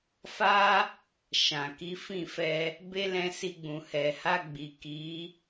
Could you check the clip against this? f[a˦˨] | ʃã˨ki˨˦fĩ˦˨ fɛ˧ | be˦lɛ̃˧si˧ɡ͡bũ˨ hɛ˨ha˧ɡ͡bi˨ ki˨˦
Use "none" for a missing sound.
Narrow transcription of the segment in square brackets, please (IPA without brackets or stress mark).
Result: a˦